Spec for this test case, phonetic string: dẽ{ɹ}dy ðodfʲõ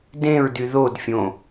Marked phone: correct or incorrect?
correct